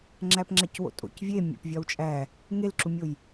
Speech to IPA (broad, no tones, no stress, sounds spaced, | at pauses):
ŋ͡ǁ æ p ŋ͡ǁ æ c w o̰ tʼ o̰ c vʲ e mʲ æ̰ p vʲ ɒ w t͡ʃʼ æ | ŋ e l ǁ u mʲ o j